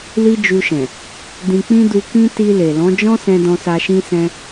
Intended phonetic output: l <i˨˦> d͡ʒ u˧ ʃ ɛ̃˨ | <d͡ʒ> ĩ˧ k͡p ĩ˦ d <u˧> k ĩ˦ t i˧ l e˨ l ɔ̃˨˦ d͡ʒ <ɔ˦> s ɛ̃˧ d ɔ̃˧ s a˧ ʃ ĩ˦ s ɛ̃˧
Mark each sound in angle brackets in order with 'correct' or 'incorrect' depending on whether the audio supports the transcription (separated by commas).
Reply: incorrect, incorrect, correct, incorrect